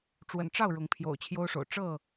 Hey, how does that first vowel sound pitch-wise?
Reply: low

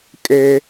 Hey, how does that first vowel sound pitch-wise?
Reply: high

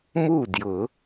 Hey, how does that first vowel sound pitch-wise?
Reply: falling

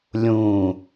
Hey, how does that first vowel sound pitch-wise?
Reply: low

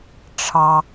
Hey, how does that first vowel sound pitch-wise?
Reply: low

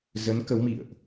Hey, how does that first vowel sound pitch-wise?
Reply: rising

